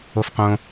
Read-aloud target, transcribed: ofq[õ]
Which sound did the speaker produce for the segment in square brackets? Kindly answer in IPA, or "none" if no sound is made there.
õ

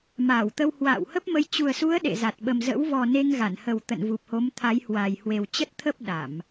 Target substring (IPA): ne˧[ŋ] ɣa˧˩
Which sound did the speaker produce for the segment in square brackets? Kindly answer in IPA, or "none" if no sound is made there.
ŋ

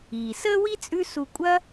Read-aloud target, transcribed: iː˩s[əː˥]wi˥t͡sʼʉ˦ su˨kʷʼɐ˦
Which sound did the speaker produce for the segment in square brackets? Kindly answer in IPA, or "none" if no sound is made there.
əː˥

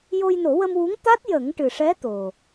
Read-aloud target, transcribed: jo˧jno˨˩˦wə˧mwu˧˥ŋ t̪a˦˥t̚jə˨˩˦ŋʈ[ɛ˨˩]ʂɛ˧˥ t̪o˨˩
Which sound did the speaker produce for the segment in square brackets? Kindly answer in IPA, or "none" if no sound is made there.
ɨ˨˩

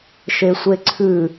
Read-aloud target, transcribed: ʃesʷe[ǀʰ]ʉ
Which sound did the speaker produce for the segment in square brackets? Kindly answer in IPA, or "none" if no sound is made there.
ǀʰ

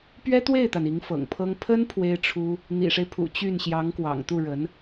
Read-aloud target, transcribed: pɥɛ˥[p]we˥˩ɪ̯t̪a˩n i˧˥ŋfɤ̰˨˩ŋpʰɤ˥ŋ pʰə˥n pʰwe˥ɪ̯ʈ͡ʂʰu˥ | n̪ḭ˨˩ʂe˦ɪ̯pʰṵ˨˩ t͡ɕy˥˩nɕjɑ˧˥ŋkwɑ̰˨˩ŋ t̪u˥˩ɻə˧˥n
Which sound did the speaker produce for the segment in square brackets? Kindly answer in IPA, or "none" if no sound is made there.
t̪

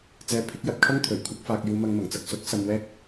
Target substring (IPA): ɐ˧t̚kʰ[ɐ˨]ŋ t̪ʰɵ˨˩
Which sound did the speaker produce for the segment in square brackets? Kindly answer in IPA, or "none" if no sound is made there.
ɐ˥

